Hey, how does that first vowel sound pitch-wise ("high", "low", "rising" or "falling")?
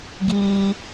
high